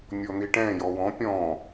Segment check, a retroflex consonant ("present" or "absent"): present